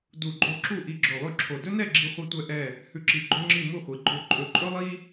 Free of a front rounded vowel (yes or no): yes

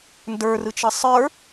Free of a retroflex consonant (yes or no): yes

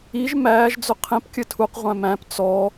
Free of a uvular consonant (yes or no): no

